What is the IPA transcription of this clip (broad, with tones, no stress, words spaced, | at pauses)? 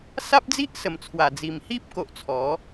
sa˦p̚d͡zi˦ʔsə˨˩mt͡sʰwa˨˩ d͡zi˨˩mhi˦p̚ko˨ʔ t͡sʰɔ˨˦